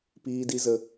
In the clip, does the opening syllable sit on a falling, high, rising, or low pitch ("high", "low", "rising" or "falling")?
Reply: high